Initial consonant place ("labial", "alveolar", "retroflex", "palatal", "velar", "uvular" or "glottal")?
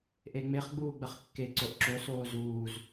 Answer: glottal